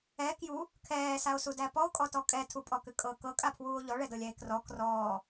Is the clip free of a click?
yes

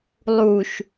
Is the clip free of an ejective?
yes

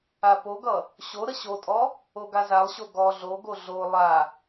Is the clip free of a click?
yes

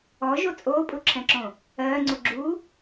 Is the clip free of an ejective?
no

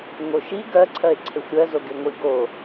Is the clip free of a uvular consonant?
yes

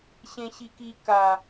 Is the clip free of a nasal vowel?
no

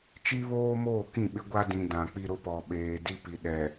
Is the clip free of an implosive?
no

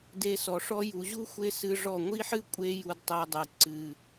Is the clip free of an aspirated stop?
yes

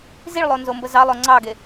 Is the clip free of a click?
no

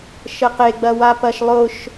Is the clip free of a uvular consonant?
no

